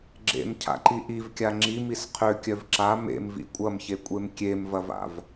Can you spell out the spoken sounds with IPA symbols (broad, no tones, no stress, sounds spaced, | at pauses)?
ɡ͡ǁ ḛ m cʰ a̰ ǃ i ʔ i v kʲ a ŋ͡ǁ i m i s qʰ ø kʲ œ v ǁ a m ḛ m v ḭ kʷʼ ɐ m ç e kʷʼ e m kʲ e m v ɐ v a̰ v